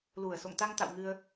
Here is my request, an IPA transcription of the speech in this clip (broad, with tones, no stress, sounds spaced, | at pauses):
l u˨˩ ə̯ s o̰˧˨ ŋ t̪ a˧ ŋ t̪ a̰˧˨ w ŋ ɨ˧ ə̯